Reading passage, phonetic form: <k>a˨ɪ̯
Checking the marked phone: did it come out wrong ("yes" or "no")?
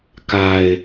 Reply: no